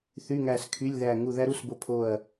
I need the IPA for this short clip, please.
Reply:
θy˧˥˧ŋæ˦˨skʰy˧˥˧lʲðæ˦˨ ŋu˦˨ðæ˥ɾu˧˥˧sbo˦˨ pʰo˦˨ɐ̯

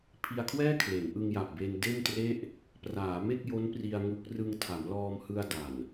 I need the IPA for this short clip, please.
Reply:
pʰi˧a̯kʰwɛː˥˩ kʰle˩˦nʔɯ˧ŋja˨˩p̚be˧n de˥˩ntre˥˩ʔ | praː˩˦me˥˩k̚jo˦˥n pri˧a̯ŋu˦˥k̚ rɯ˧ŋtʰa˩˦mlɔː˧mhɯ˧a̯ da˨˩n

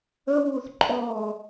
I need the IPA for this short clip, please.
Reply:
əwuːθ ǃʼɔː

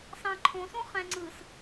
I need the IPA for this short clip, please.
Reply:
sɑ̃ǃʰõsõ χɛ̃ŋ͡ǀɯs

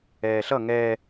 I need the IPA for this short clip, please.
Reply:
ɛːɬʌ ŋɛ

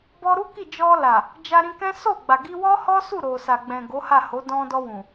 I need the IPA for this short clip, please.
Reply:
bɔ˧ɾu˦ki˦˨d͡ʒɔ˧ la˨ | d͡ʒa˧ɾĩ˧kɛ̃˦ so˦˨ɡ͡ba˨ ɡi˧wɔ˦hɔ˦su˦˨ ɾo˨sa˨ɡ͡bɛ̃˨ ɡo˨˦ha˦˨ho˨˦ dɔ̃˧dɔ˧wũ˨

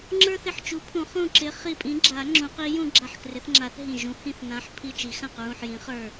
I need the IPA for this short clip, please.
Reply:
ŋ͡ǁə˞˦θɪ˧˩ħt͡ʃu˨˥pʰũ˨˩˦ χũ˧˩ǁɪ˨˥ χi˧˩pʼĩ˨˥ɡ͡ǁa˨˩˦ ŋ͡ǁũ˨˩˦qi˨˥jũ˦ ɡ͡ǁa˧˩ħkrɪ˨˩˦θŋ͡ǁa˨˩˦θ ɦĩ˧˩ ʒũ˨˩˦ hĩ˧˩θnã˨˥ħ pʰi˧˩t͡ʃi˨˩˦ xã˧˩qɹũ˧˩ħjĩ˨˩˦χə˞˧˩

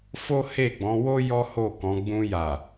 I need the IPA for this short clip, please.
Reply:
fo˦he˦˨ɡ͡bɔ̃˨˦wo˦ jɔ˦ho˦˨kɔ̃˨˦ ɡ͡bũ˧ ja˨

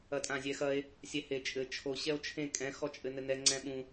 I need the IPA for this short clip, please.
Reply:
ɐtʼãzʲɛxɐe̯ | sʲɛhe t͡ʃʼɘ t͡ʃʰo ɕɛo̯t͡ʃʰẽ kʼɛ̃ xɔt͡ʃʼɘnɘnɛ ŋ͡ǀɛ̃ɓũ

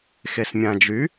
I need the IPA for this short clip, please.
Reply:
xesmʲãd͡ʒy

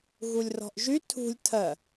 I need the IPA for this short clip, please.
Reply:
ɣulʲrɔ̤ʔʒy tʰṳlʲ tʰɜ

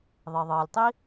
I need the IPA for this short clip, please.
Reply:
ðˤi˩ðˤɤː˩lʲtˤi˥

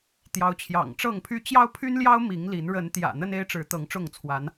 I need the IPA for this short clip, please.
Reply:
t̪jɑ˨˦ʊ̯t͡ɕʰjɑ̰˨˩ŋʈ͡ʂɤ˥˨ŋpʰy˦ t͡ɕjɑ˦ʊ̯pʰy˦nljɑ˦ʊ̯ mi˨˦ŋli˨˦n ɻə˨˦n t̪jä̰˨˩ n̪ə˦ne˦ɪ̯ʈ͡ʂɻ̩˨˦ t̪ɤ˨˦ŋʈ͡ʂʊ˥˨ŋt͡sʰwa˨˦n

